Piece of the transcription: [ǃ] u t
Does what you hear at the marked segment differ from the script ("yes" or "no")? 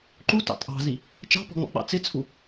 no